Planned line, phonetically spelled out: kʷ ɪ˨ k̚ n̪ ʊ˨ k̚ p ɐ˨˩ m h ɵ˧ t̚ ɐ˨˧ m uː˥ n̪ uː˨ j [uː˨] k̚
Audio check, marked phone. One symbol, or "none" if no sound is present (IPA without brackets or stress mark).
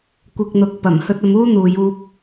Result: uː˧